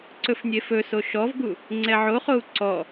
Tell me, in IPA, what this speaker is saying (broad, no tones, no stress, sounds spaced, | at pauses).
ǀ ɵ f nʲ e f ɵ s o ʃ ɔ v ɡ u | ŋ͡ǀ ɛ ʕ o χ o u̯ ǀ ɔ